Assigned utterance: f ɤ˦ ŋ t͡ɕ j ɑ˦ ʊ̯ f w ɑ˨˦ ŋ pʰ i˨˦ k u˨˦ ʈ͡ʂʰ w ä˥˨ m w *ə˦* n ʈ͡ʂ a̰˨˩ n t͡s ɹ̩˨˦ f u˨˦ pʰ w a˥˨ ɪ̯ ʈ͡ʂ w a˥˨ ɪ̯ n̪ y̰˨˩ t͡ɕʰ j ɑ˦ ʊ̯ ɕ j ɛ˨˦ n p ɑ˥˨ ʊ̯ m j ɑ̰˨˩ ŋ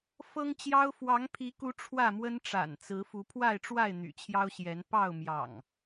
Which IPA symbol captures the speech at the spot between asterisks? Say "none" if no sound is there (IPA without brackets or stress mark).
ə˦